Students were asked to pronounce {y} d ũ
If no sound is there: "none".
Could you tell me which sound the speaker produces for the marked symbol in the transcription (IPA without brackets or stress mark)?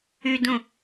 y